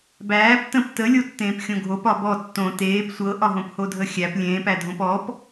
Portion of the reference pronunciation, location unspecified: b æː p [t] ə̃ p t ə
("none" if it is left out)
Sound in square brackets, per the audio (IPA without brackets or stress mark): t